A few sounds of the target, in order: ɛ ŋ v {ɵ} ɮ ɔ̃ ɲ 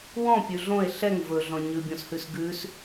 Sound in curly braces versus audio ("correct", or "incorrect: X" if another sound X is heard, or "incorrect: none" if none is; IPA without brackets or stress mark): correct